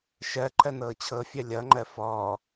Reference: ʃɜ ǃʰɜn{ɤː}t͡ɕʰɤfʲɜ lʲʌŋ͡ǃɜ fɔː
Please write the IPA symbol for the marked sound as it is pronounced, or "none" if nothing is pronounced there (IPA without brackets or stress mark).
ɤː